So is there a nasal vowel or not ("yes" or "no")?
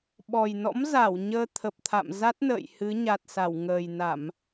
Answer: no